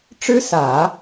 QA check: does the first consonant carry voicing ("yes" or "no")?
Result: no